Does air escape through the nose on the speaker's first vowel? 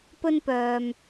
no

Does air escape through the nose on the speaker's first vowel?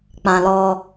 yes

